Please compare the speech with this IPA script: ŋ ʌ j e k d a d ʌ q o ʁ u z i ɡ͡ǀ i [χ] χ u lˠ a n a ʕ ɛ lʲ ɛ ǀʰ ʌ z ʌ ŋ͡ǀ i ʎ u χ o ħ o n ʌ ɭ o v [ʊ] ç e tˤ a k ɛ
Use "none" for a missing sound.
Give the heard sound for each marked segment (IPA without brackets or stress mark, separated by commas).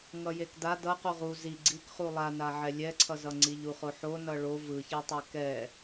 k, ɯ